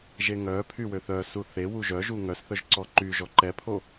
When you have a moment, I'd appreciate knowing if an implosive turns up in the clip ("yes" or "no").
no